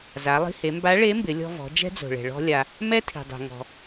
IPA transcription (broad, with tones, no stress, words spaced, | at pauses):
za˩˧lˠi̤˧he˩˧mba˧˥ ɭe˧˥mbɪ˩˧ lʲɔ̤˧vɔ̤˩˧ d͡ʒɛ̤˥d͡zo̤˩ɭɛ̤˩ ɭɔ̤˧lʲa˩ | mɛ˥tʰi̤˩dˤɛ̤˩ ŋɔ̤˩